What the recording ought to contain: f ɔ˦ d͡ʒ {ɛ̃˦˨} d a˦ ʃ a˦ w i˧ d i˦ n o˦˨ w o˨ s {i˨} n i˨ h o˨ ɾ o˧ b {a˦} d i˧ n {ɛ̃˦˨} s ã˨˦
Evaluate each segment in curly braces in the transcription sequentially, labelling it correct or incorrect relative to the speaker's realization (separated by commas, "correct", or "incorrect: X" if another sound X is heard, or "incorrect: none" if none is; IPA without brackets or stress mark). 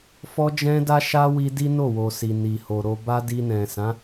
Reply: incorrect: ɛ̃˦, correct, correct, incorrect: ɛ̃˨